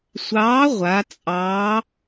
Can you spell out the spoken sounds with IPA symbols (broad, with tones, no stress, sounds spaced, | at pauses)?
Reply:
sʷ ɑː˨˥ ʁʷ a˩˧ t͡sʼ ɑ˨˥